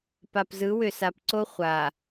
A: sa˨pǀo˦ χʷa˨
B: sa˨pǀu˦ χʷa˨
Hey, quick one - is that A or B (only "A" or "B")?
A